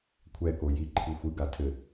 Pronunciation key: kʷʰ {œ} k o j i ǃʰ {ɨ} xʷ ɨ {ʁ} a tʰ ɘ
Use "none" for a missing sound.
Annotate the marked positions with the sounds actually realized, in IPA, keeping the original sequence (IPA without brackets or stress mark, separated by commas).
ɛ, i, ɡ